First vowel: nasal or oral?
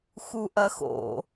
oral